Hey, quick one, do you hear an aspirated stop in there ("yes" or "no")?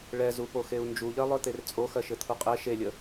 yes